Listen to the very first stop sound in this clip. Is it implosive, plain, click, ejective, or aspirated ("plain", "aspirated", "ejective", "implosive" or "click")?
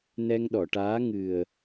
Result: implosive